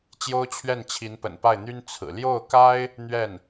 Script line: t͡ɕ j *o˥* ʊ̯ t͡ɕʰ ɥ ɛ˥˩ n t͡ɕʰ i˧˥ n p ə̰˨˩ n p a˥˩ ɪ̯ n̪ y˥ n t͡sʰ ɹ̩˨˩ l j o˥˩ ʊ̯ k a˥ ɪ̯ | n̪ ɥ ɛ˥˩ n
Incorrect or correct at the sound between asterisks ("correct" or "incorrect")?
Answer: correct